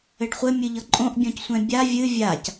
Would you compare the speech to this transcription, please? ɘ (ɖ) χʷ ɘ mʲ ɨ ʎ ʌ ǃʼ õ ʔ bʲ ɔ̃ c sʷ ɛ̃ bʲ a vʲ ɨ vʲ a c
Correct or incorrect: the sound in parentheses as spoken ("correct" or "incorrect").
correct